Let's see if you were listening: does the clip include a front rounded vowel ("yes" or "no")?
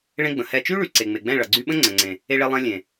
yes